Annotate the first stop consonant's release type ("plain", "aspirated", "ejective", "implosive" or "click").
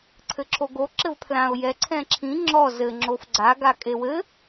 click